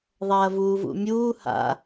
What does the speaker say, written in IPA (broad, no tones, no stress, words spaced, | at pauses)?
ðˤɐːvuːvṵmʲuː ha̰